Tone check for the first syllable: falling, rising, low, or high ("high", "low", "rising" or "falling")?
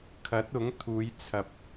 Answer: rising